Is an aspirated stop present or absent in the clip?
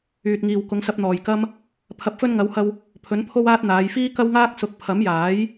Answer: present